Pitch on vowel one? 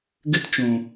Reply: high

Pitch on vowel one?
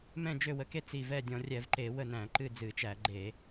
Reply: falling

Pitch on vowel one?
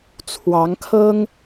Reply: rising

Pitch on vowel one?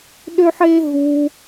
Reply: high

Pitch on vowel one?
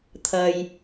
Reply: low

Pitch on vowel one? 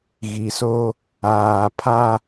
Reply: low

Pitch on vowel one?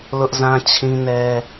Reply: high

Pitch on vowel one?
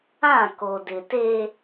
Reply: falling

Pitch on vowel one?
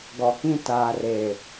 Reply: low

